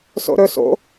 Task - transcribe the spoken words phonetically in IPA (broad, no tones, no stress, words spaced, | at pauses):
so̰ɾɵ so̰